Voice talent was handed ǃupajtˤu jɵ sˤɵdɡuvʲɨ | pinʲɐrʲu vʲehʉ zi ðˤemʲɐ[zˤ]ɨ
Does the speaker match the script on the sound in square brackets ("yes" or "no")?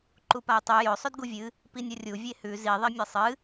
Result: no